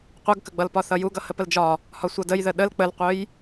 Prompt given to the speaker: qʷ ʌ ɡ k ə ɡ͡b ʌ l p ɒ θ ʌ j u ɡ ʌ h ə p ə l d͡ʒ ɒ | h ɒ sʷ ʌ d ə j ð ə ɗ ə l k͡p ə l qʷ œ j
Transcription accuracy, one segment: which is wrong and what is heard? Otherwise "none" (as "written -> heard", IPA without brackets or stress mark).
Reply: none